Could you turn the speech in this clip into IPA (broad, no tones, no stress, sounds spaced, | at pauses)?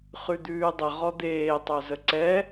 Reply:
χ ʉ d̪ ʉː dˤ ə ʁ ɔ d̪ eː tˤ œ z ə ǀ ɛ